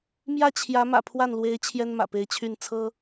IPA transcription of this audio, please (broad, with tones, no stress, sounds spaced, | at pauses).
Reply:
m j ä˥˩ t͡ɕʰ j ä˧˥ m ä̰˨˩ pʰ w a˥˩ n l w e˧˥ ɪ̯ t͡ɕʰ j ɛ˥ n m ä̰˨˩ p e˧˥ ɪ̯ t͡ɕʰ y˥˩ n t͡sʰ ɤ˥